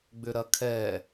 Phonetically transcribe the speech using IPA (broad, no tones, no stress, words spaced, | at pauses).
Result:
ɡ͡bʏɾɐkʰɛ